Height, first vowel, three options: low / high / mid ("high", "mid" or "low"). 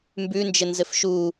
high